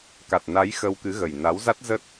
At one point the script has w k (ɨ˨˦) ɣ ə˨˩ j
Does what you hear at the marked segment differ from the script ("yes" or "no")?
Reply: no